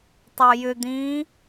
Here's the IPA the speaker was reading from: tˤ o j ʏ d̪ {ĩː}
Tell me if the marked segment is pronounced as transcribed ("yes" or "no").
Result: yes